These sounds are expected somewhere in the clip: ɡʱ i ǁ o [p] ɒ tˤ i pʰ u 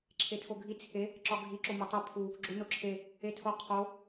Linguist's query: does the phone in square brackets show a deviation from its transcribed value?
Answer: yes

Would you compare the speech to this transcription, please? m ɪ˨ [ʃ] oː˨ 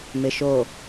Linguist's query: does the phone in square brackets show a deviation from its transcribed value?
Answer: no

